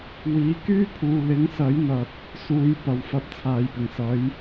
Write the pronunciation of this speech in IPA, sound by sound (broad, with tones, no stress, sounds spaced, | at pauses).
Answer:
w iː˨˧ k yː˥ pʰ uː˨ l ɪ˨˥ ŋ s ɐ˨˥ j n̪ ɐ˨ t̚ | s uː˨˧ j p ɐ˨˧ w f ɐ˧ p̚ t͡sʰ aː˨˧ j p ɪ˨˩ ŋ s ɐ˨˥ j